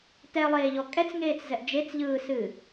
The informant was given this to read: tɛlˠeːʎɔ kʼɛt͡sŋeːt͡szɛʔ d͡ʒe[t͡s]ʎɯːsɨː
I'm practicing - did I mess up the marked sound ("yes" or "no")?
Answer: no